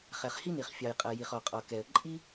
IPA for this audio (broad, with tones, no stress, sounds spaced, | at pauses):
χ ɛ˩ χ h i˥ n i˩ χ fʲ ɑ˩ j qʼ ɜ˩ j i˩ χ ɔ˩ qʼ ɔ˩ k ɛ˩ ə̯ ǃʼ i˥